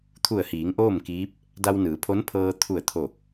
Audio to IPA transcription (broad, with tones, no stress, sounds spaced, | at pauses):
t̪ʰ u˧˩ ə̯ h iː˩˧ ŋ ʔ oː˥˨ m k iː˧˥ p̚ | d a˧ w n ɯː˩˧ pʰ o˧˥ n pʰ ɤː˧ t̪ʰ u˧˩ ə̯ t̪ʰ o˧˩